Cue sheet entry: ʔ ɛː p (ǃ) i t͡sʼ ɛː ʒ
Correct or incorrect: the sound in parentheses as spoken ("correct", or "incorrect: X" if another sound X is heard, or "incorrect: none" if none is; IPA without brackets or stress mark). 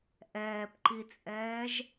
correct